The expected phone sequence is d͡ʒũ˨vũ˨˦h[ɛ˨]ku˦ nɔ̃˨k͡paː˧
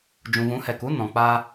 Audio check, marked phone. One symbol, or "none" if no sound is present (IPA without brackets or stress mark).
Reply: ɛ˨